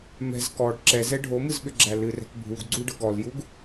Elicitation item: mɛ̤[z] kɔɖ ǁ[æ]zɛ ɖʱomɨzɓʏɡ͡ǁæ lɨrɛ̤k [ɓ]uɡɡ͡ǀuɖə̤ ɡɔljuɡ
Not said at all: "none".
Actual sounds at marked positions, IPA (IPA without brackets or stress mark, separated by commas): z, ɛ, bʱ